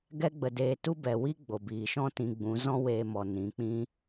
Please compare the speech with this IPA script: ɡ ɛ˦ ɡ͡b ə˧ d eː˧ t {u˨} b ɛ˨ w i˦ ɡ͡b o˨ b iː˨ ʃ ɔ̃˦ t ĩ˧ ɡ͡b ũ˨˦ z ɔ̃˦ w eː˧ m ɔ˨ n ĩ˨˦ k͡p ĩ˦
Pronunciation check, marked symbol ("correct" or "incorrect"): incorrect